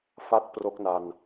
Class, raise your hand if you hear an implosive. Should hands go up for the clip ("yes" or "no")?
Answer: no